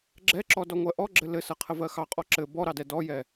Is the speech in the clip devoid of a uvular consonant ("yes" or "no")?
no